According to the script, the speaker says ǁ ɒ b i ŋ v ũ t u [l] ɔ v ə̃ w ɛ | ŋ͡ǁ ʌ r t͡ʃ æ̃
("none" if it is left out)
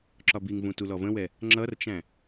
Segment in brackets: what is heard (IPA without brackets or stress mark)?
l